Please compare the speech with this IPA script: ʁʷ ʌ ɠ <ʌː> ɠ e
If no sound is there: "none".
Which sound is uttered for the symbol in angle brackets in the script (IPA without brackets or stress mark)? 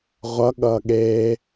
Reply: ʌː